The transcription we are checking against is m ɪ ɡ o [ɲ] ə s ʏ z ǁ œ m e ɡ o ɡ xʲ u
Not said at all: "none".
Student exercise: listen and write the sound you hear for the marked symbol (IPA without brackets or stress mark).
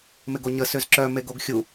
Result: ɲ